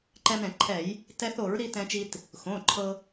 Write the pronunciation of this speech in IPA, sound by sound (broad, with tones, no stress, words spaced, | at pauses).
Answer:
ǃɛ˧mɾɛ̃˧˩˧ǃʰɛ˧˩˧j | tɛ˧θo˧˩˧ɹɾi˧ tɛ̃˧t͡ʃi˧t | xõ˩˧˩ǃʰɤ˧